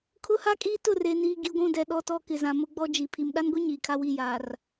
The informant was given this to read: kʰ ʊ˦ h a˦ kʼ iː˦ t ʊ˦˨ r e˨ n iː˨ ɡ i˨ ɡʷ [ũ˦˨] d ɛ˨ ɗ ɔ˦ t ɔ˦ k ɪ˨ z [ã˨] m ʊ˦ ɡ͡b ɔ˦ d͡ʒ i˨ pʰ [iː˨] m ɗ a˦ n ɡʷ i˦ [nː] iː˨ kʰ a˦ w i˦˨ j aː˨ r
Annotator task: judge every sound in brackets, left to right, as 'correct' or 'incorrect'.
correct, correct, incorrect, incorrect

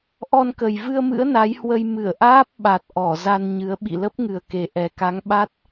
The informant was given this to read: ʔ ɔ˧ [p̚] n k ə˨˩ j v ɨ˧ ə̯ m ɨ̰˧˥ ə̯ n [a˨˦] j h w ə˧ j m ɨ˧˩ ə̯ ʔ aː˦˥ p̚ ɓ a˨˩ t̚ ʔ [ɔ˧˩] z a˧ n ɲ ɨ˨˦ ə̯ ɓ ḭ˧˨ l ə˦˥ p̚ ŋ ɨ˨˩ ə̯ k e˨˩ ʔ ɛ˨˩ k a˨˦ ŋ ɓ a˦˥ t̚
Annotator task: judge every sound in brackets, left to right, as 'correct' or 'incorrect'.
incorrect, correct, correct

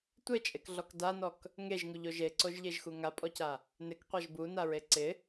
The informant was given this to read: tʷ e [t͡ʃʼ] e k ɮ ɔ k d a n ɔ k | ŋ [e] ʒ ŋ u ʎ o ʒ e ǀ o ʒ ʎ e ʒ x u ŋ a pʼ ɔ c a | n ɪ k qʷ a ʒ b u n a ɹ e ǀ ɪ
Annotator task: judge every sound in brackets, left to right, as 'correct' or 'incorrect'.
correct, correct

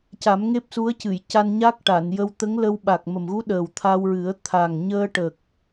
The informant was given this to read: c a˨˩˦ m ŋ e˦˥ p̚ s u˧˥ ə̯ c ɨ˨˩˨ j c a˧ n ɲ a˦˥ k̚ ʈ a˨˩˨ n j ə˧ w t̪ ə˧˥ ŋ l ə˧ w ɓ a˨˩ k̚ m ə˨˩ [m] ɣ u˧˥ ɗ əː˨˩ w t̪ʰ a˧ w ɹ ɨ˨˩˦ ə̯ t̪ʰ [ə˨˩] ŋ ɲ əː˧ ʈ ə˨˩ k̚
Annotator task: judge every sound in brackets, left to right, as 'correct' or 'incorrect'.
correct, incorrect

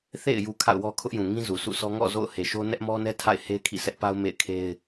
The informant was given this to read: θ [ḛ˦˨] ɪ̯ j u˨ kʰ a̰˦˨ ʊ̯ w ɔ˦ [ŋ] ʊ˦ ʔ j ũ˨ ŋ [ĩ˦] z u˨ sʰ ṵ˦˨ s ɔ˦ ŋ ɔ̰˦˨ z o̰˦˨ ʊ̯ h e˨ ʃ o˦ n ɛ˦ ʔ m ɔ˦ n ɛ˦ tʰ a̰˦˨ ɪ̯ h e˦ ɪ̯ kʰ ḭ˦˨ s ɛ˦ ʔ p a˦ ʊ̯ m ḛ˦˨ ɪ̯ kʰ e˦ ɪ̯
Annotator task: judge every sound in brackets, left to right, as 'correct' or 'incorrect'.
correct, incorrect, correct

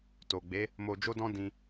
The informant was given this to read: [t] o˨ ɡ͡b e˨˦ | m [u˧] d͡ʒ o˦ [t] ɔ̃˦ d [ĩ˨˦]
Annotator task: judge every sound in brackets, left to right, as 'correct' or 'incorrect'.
correct, incorrect, incorrect, incorrect

